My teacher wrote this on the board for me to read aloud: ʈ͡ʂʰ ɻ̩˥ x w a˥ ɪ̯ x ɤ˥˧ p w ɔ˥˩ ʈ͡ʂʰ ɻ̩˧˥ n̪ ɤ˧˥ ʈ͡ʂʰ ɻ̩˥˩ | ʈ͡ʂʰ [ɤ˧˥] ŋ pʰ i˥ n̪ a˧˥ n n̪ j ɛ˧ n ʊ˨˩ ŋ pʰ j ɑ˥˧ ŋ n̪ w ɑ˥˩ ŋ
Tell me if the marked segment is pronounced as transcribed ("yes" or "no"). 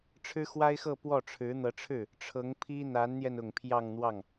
yes